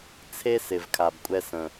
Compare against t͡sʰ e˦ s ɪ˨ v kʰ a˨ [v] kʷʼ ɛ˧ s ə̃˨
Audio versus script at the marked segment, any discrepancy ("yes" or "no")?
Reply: yes